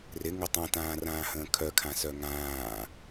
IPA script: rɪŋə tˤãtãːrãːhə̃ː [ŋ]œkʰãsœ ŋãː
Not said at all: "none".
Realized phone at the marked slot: kʰ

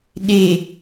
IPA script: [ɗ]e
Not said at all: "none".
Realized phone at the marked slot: ɗ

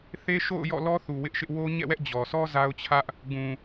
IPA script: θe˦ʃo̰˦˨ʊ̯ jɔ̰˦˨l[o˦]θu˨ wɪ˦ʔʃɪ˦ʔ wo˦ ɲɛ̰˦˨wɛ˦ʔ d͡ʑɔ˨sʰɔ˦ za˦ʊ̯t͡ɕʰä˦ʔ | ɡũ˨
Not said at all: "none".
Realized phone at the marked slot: ɔ˦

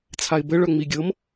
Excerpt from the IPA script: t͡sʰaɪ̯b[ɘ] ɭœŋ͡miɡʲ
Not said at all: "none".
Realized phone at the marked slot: ɘ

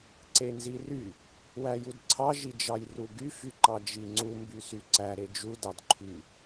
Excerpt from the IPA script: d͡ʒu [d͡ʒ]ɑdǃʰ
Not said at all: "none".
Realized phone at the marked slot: d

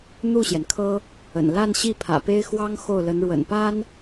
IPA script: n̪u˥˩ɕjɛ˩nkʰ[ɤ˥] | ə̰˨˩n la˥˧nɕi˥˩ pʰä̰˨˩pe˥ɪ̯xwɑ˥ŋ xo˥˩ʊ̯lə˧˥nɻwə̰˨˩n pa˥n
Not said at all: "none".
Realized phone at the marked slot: ɤ˥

